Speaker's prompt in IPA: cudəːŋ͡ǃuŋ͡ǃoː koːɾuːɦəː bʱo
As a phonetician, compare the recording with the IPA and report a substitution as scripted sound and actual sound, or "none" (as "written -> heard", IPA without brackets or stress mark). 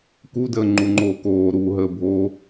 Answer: c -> k